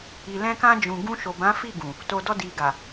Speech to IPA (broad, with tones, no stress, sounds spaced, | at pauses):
i˨ l ɛ̃˧ k ã˧ d͡ʒ ũ˨ ɡ ũ˧ ʃ o˨ b ã˨˦ f i˦˨ ɡ ũ˨ | t o˨ d ɔ˧ d i˨ ɡ a˨